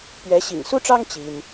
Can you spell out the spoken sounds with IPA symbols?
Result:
pɥɛ˨˦ɕḭ˨˩ŋsu˦ʈ͡ʂɑ˦ŋ t͡ɕi˦n

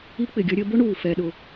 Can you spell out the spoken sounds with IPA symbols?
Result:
i˥k͡pɪ˩ɡʲʌ˥ɾʲəː˥ bʊ˥ɳuː˩ fɛ˩ɗʊ˩

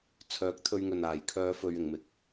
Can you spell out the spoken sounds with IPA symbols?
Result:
t͡sʰœː˨˥k̚ t̪ʰɵ˧ɥŋɵ˨naː˨j kʰœː˨˧ fɵ˧ɥɪ˨˧ŋmɪ˨˥k̚

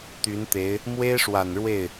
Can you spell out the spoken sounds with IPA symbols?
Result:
t̪y˧˥nt̪e˧˥ɪ̯ | mwe˥ɪ̯ʂwa˨˩nɻwe˥˩ɪ̯

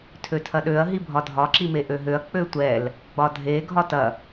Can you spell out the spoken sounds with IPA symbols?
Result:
tʰøtʰɐɗøɐ̯ ɦibʱɒdʱɒ ǁimeʔøɦøɐ̯ k͡pøtʷɛl | ɡ͡bɒdʱe ɡʱɒtɐ

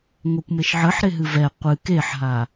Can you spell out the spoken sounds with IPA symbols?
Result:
ŋʷɛkʷmeʃʕəħɾe ɦɨvɛ qʷɨ keħɦa

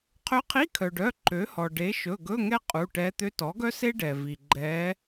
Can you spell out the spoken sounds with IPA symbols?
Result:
qʰø˧˥qʰi˧˥˧kʰœ˩ɖœ˩˧˩ ǃø˩˥hɔ˩ ɖe˩˥ʃɵ˩˧˩ɡɵ˧˥˧ ŋɛ˥ qʼu˩˧˩ʈɛ˧˥ t̪ø˧˥tɔ˩˥ɡœ˥se˥ ɖɛ˩ vi˩ ɡ͡ǃɛ˧˥

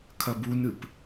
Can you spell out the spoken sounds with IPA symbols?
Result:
kʰɐbunɨp

